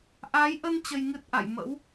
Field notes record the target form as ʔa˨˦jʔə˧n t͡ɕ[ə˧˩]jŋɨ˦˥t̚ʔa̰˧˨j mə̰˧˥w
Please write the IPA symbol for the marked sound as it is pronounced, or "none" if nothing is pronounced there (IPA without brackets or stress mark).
ə˧